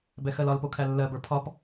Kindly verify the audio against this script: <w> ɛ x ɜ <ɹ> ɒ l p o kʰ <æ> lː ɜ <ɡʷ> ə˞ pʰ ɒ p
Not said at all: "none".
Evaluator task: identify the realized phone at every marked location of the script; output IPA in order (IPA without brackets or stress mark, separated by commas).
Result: b, l, æ, b